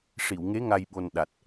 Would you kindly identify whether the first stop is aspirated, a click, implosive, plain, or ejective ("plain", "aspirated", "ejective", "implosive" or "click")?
implosive